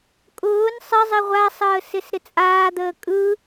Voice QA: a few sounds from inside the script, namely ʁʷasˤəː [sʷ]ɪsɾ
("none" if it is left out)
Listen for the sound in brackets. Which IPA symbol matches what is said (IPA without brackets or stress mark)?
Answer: s